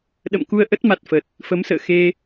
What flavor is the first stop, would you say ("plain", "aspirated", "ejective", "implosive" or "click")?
implosive